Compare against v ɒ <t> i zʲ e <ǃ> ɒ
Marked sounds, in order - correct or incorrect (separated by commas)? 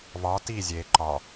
correct, correct